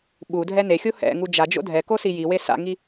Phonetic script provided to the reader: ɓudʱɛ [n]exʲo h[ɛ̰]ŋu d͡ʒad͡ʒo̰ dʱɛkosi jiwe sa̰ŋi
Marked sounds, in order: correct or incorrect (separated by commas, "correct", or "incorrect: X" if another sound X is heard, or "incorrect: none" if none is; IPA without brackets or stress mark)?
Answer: correct, correct